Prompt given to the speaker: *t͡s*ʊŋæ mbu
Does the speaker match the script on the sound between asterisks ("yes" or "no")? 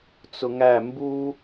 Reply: yes